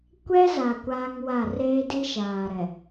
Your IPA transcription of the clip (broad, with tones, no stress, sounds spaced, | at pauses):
kʷ ɛ˦ z a˨ kʷ aː˦ ŋ w a˦˨ r eː˦ d i˦ ʃ aː˨ ɾ ɛ˨